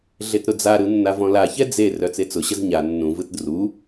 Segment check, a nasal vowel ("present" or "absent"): present